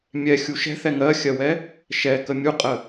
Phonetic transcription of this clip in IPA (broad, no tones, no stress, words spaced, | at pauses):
mʲɛxʲu ʃɛ̤θɛ ŋɜxʲɜwɛ | ʃɛkə mʲuqʼə